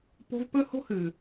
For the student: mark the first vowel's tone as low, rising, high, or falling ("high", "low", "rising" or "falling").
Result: high